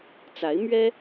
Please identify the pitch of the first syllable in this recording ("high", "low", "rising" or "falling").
rising